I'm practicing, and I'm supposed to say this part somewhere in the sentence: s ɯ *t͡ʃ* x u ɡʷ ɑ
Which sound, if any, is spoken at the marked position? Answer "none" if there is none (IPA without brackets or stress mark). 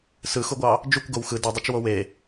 none